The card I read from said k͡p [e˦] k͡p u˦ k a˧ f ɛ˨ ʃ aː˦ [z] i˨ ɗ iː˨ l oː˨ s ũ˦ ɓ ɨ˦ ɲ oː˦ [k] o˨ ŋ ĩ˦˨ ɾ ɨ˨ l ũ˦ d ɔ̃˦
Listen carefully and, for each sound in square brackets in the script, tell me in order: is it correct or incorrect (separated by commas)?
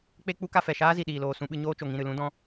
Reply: correct, correct, incorrect